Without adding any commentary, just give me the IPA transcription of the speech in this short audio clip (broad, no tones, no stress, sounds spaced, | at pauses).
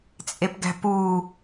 t͡sʼ e p ɡ æ̤ p uː